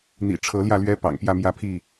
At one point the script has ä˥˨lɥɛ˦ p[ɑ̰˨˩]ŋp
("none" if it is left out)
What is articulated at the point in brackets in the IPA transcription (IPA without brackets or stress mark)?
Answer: ɑ̰˨˩